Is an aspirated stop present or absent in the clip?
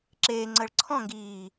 present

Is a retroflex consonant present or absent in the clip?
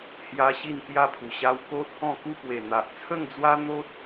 absent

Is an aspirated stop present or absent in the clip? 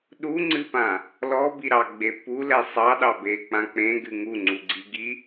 absent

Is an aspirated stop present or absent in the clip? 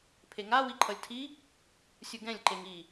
present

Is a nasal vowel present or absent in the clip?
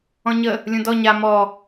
present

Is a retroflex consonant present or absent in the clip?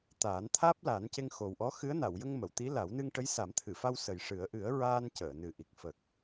present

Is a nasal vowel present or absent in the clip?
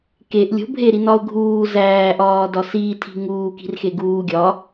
absent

